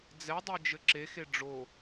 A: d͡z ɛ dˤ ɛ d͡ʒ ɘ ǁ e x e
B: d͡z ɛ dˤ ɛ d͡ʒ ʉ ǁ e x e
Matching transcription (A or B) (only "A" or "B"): A